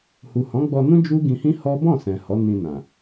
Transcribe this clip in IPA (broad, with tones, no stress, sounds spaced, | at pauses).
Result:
h u˨ h ɔ̃˨˦ ɡ͡b ɔ˧ n ũ˦ d͡ʒ u˦ ɡ ĩ˧ h ĩ˦ h ɔ˦ b ɔ̃˦˨ s ɛ̃˨ h ɔ˨˦ n ĩ˧ n ã˨